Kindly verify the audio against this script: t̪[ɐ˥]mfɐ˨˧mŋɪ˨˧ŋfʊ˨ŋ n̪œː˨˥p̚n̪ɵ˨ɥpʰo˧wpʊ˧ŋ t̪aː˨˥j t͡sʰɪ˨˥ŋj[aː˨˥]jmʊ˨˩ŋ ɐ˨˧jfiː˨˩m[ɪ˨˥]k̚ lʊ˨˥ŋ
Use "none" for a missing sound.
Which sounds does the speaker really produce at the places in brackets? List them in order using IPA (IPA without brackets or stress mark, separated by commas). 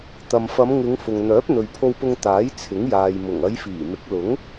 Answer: ɐ˨, aː˨, ɪ˨˥